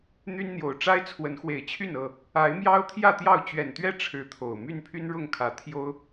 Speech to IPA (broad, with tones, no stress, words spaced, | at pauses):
n̪y˦nn̪jo˨˩ʊ̯ ʈ͡ʂa˦ɪ̯ t͡sʰwə˨˦nxwe˨˩ɪ̯t͡ɕʰy˥˨n ɤ˥˨ | a˨˦ɪ̯mjɑ˦ʊ̯ t̪ʰjä˥˨t̪jɑ˥˨ʊ̯ t͡ɕɥɛ˨˩nt̪ɥɛ˥˨ ʈ͡ʂʰɻ̩˨˦ t̪ʰo˨˩ʊ̯ my˥˨npʰy˦nɻʊ˥˨ŋkʰä˨˩ t̪ʰjo˦ʊ̯